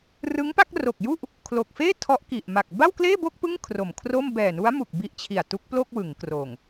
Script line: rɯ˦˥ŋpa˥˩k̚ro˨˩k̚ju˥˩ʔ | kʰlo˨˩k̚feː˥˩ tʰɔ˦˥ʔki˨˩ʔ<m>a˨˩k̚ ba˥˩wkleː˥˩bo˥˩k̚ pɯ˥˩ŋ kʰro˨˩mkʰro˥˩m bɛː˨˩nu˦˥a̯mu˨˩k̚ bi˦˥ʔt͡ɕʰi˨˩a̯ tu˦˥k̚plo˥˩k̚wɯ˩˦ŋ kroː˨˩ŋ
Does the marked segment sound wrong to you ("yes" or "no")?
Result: no